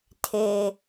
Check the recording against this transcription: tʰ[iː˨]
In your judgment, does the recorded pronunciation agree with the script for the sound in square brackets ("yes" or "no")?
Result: no